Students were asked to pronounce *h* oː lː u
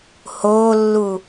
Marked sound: correct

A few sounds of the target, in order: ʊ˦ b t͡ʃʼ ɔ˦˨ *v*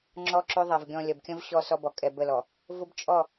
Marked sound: incorrect: none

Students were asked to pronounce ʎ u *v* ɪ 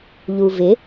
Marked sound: correct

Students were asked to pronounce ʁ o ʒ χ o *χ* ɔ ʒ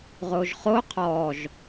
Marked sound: incorrect: qʰ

